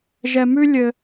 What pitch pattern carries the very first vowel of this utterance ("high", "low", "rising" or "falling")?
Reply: low